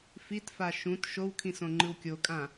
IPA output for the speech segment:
f i t f a ʃ ũ t ʃ o w kʰ ĩ s õ ŋ͡ǃ ɯ w kʲ o kʼ ã

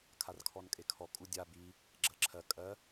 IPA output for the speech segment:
kʰ a r kʰ ɔ n kʼ e kʰ ɔ kʼ u dʲ a b i | ɡ͡ǁ ɜ ǁʰ ɜ kʼ ɜ

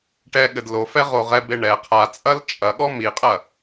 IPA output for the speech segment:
ʈ ɛ ɠ ɘ d l o f ɛ ʁ o ʁ ɛ b e ɳ ɛ qʰ a t͡sʼ ɐ l t͡ʃʼ ɐ ɠ ɔ m i qʼ ɐ

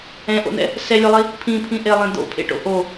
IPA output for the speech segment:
ɛ̃ ʔ o̰ n̪ ɛ̰ | s ɛ lʲ o lˠ i | pʰ ĩ pʰ ĩ ʔ e lˠ ẽ d̪ o̰ pʰ ḛ ʈ o̰ ʔ o

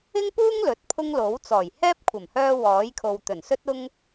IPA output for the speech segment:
ɪ˥ ŋ p uː˥ ŋ l ɵ˨˥ t̚ pʰ ʊ˥ ŋ l o˨˥ w t͡s ɔː˨˩ j h ɛː˥ p̚ kʷʰ ɐ˨˩ m h œː˧ w ɔː˨˥ j kʰ o˨ w t̪ ɵ˨˩ n s ɵ˥ t̚ ʊ˥ ŋ

